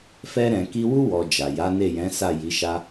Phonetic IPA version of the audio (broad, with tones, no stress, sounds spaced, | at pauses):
f ɛ˧ ɾ ɛ̃˨ k i˧ w u˦ w ɔ˧ d͡ʒ a˨ j a˨˦ n e˦˨ j ɛ̃˨˦ s a˦˨ j i˨˦ ʃ a˦